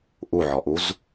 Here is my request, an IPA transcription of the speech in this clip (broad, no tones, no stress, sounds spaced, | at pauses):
ʔ u ʕ ɔ ʔ u z